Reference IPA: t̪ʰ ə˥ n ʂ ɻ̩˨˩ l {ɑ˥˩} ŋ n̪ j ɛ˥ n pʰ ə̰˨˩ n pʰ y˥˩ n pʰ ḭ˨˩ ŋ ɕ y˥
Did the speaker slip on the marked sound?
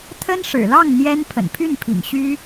no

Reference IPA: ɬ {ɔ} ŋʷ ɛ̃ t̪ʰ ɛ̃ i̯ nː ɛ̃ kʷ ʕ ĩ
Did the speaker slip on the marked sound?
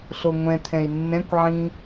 yes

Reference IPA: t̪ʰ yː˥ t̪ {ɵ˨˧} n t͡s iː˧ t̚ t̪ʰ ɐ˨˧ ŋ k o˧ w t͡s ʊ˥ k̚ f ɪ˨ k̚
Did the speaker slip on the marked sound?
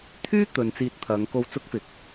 no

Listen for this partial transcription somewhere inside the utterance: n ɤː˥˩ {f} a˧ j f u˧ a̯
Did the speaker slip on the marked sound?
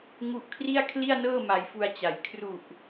yes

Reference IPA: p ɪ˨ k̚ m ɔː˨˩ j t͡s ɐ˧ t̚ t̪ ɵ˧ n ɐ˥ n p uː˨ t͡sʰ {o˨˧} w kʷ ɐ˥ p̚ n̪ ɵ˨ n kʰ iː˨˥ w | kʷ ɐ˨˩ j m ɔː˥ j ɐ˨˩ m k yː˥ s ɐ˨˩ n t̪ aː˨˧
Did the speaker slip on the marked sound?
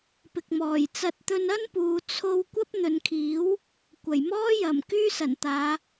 yes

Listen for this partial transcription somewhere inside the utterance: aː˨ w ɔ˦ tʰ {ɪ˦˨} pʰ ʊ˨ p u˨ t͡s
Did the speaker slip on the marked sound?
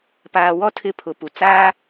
no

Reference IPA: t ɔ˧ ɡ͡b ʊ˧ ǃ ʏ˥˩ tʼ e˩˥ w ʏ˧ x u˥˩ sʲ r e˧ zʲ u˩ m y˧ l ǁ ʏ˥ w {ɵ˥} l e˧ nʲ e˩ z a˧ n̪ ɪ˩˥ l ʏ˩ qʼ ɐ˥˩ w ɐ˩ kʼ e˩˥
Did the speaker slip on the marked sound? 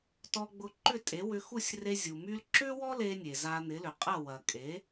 yes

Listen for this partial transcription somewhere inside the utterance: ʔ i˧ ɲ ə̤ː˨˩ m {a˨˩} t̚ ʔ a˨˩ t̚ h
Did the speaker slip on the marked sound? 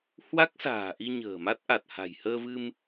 yes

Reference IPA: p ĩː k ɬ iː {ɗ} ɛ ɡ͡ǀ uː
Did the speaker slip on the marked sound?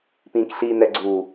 yes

